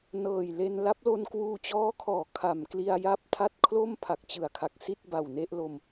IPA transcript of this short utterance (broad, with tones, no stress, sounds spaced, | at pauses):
n ɤː˨˩ j l e˧ n l a˦˥ p̚ l o˧ n k w uː˧ t͡ɕ ɔː˦˥ kʰ ɔː˩˦ kʰ a˩˦ m k l i˧ a̯ j a˥˩ p̚ tʰ a˥˩ t̚ kʰ l o˥˩ m pʰ a˨˩ k̚ t͡ɕ ɯ˨˩ a̯ kʰ a˨˩ k̚ s i˥˩ t̚ b a˨˩ w n e˥˩ ʔ l o˧ m